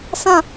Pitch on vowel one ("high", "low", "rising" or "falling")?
falling